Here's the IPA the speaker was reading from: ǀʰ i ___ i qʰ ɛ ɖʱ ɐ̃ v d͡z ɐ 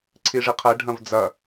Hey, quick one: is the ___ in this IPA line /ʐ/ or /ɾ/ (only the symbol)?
ʐ